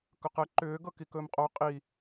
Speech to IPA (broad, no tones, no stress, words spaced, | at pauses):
kɵqɛ ǃʏː ɡɤkikɵːmqʼo qʼi